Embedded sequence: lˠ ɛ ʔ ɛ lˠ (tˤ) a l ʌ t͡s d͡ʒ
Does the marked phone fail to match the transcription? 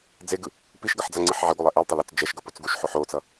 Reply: no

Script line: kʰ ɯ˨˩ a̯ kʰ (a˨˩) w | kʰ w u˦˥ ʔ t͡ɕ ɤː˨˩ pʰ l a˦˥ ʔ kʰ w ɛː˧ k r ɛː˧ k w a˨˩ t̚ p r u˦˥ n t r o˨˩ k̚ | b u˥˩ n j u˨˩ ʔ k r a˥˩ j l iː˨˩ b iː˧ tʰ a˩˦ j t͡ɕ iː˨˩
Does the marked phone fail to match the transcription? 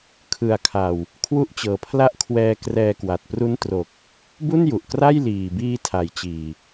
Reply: no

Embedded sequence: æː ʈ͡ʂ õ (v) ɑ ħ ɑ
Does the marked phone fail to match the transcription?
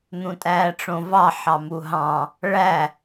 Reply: no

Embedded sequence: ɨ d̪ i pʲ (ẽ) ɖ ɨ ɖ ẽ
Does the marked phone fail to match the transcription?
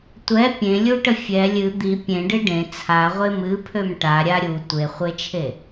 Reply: no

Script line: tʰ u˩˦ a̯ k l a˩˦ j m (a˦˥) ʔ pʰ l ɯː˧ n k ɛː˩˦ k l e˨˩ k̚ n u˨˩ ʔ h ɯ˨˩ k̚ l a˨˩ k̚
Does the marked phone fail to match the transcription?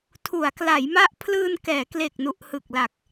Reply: no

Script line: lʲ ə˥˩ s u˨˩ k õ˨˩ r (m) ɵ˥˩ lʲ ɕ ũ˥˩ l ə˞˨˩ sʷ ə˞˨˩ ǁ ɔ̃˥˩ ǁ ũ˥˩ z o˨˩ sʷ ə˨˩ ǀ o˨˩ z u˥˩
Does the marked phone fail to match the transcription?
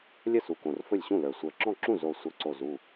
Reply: yes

